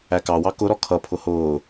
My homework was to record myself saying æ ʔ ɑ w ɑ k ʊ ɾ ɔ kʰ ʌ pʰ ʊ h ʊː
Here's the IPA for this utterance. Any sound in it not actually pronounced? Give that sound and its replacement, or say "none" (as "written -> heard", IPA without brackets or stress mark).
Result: ʔ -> k